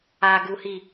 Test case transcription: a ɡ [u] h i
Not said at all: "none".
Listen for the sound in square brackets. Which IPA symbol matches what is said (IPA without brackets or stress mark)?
u